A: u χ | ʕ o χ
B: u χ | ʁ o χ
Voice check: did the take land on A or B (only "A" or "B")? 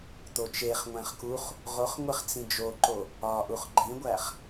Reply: B